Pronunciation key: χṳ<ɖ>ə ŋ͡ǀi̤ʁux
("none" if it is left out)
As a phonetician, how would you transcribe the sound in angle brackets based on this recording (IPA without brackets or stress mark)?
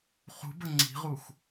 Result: b